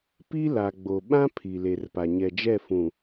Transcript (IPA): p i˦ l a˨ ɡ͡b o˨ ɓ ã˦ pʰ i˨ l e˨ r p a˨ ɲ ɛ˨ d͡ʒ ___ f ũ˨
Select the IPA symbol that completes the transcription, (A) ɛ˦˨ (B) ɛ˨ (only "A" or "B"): A